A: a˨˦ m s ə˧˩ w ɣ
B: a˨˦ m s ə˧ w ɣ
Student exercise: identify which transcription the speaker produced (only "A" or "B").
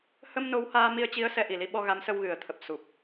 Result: B